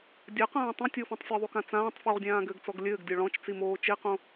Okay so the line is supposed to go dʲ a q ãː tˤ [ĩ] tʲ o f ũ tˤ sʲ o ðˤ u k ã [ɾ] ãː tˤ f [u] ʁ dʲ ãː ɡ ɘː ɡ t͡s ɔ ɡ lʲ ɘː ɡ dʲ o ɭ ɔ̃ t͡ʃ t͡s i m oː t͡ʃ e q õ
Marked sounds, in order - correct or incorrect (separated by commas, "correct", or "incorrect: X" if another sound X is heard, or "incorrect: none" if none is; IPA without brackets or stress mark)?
correct, incorrect: t͡s, correct